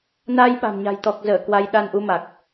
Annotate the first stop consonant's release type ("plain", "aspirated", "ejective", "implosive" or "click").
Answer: implosive